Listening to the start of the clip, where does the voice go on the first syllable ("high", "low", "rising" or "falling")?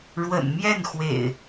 low